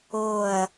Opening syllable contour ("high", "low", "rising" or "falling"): falling